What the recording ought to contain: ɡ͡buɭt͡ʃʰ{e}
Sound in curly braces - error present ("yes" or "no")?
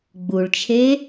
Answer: no